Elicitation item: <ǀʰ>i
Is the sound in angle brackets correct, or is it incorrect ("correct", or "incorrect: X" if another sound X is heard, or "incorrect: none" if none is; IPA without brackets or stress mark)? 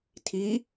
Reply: incorrect: tʰ